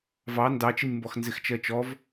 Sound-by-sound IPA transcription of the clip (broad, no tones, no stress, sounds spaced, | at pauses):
v ɑ n d ɑ t͡ʃ ɪ nʲ m b ɔ x n z ɪ x t͡ʃ ɜ t͡ʃ ɔ v